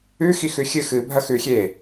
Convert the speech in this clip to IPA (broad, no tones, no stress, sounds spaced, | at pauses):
ʉ x i x ʉ xʲ ɨ x ɨ bʱ ɐ x ʉ xʲ e